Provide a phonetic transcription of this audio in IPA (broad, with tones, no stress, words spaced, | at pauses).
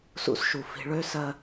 sṵ˧sʃu˨ fi̤˧ɭø˦ sɜ˧